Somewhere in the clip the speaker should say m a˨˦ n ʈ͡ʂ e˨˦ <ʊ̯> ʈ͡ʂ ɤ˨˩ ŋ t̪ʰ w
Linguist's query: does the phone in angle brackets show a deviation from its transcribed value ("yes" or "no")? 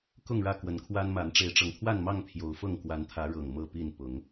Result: yes